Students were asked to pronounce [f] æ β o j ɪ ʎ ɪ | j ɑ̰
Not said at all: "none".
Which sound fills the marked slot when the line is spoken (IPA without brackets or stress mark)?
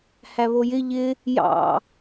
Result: h